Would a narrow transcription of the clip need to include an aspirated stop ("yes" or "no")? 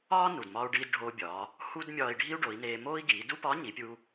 no